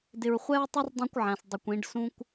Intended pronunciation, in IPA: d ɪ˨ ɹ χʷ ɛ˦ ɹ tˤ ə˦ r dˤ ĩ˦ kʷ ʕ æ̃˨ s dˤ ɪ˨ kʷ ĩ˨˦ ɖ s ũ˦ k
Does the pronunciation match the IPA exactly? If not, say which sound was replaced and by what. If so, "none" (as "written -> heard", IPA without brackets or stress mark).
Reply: k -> kʷ